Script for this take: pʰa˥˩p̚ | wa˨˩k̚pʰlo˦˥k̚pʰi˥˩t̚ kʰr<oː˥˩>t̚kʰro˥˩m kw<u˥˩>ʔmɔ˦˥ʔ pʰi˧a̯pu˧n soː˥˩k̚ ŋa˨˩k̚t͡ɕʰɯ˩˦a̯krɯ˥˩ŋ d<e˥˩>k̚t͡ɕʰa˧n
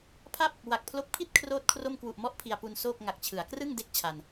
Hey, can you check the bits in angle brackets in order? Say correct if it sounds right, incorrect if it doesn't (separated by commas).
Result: correct, incorrect, correct